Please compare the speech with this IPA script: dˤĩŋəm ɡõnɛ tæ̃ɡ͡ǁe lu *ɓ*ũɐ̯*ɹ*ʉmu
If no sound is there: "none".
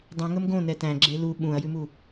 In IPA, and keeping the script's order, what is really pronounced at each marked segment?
ɓ, j

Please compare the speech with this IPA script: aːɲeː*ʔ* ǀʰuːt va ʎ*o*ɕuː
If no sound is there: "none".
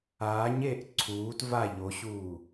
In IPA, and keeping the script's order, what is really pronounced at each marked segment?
ʔ, o

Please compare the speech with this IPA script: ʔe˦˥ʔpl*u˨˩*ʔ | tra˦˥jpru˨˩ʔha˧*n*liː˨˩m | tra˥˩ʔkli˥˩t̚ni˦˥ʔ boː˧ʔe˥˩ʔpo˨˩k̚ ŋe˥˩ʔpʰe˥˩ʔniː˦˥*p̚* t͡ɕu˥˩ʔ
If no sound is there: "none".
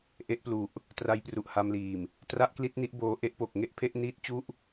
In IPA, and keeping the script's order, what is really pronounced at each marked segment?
u˨˩, m, t̚

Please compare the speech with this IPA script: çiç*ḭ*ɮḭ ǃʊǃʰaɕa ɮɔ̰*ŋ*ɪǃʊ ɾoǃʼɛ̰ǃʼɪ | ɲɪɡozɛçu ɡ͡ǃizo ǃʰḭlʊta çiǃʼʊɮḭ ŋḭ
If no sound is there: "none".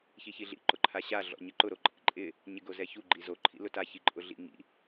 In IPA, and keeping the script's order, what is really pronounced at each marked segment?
i, ɲ

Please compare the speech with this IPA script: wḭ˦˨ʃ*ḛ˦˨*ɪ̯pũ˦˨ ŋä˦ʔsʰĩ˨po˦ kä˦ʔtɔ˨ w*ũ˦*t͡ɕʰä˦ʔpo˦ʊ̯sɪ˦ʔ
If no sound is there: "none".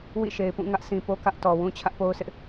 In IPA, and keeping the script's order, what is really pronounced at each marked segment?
e˨, ũ˦

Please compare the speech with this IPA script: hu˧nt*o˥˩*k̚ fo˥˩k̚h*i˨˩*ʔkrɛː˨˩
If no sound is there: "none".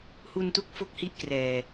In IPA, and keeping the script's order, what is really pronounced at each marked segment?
u˥˩, i˥˩

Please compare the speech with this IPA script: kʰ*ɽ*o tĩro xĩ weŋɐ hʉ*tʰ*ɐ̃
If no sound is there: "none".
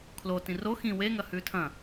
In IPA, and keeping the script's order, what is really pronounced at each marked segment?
l, tʰ

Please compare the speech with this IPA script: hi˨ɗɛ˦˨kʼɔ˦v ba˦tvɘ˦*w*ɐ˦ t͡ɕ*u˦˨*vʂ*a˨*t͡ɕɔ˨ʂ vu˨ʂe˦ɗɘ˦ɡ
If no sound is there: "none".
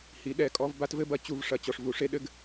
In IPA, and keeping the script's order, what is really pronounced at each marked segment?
b, u˦˨, ɐ˨

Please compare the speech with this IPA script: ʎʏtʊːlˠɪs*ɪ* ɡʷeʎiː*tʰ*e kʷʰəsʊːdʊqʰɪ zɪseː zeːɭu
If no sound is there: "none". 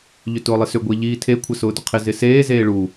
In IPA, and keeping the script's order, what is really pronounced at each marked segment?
ʏ, tʰ

